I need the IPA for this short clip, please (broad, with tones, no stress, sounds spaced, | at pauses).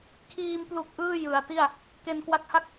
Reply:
kʰ iː˧ m p l u˨˩ k̚ ʔ ɯː˥˩ j ɯ˩˦ a̯ t i˥˩ a̯ | k e˧ n k w a˦˥ k̚ h a˥˩ k̚